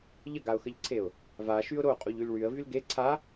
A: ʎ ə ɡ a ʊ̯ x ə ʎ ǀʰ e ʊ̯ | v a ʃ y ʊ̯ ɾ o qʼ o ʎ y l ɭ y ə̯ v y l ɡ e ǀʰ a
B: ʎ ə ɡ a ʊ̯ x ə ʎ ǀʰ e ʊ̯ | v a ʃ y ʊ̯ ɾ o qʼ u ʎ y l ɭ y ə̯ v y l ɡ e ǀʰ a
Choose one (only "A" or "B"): B